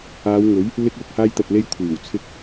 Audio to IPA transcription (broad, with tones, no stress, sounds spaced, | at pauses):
aː˨˧ w ŋ ɵ˨˥ ɥ | l ɪ˧ k̚ l ʊ˨ k̚ h aː˧ j t̪ ɐ˨ t̚ l e˧ j kʷʰ iː˨˩ w t͡sʰ ɪ˧ k̚